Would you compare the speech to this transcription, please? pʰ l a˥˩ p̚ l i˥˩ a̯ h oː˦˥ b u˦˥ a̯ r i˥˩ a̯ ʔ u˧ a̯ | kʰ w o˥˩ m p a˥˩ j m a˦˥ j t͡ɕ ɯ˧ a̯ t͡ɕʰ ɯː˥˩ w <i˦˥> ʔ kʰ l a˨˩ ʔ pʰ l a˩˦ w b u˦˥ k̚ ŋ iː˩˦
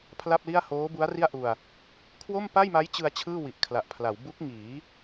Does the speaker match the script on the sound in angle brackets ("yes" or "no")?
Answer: no